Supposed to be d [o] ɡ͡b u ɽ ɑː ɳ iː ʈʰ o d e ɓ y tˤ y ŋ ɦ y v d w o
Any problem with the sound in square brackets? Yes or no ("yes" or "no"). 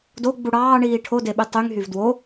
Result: no